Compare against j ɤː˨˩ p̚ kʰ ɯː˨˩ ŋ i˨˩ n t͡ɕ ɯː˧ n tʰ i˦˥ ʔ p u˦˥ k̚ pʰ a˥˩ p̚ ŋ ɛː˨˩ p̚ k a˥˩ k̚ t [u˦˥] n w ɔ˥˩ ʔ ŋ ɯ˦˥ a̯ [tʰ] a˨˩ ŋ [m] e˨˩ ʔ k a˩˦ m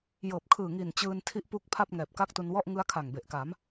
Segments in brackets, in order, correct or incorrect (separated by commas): incorrect, incorrect, incorrect